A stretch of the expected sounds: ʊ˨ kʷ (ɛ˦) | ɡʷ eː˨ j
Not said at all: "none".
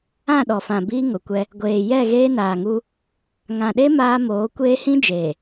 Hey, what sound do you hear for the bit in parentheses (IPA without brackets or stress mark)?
ɛ˦